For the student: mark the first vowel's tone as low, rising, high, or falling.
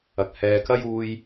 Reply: low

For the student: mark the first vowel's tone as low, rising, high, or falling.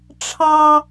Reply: high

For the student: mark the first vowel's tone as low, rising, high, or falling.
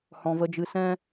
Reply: low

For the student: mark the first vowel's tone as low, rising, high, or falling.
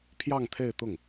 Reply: falling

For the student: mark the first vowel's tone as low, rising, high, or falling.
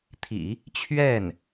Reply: low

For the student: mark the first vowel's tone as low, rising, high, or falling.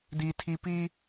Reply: high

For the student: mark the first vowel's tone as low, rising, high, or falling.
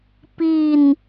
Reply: falling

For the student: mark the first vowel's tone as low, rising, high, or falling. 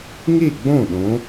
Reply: falling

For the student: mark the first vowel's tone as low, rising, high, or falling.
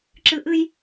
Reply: low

